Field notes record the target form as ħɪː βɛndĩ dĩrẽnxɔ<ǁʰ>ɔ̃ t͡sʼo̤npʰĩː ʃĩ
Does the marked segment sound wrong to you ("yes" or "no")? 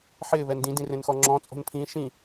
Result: yes